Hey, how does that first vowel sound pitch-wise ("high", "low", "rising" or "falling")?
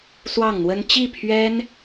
falling